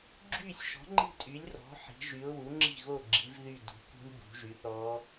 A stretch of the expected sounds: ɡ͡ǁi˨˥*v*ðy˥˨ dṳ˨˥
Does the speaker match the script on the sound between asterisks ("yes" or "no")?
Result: yes